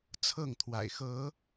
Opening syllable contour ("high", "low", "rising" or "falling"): falling